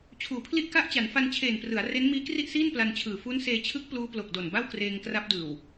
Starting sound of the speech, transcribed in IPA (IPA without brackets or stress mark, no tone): t͡ɕʰ